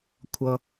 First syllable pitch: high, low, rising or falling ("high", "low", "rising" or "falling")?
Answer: low